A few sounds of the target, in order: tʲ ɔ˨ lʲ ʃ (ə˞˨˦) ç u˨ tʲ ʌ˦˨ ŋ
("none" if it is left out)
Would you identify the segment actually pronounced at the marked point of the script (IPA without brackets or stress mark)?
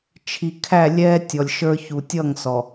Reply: ə˞˦